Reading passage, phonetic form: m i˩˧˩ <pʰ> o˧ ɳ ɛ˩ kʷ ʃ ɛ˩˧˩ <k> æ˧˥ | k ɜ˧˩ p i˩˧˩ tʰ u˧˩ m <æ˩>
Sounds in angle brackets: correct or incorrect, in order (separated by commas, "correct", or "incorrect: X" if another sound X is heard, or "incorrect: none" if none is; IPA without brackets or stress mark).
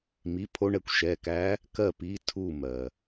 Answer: correct, correct, incorrect: ɜ˩